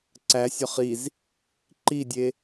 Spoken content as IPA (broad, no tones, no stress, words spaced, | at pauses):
ǀæsʲɒχ iz | ǃidʲe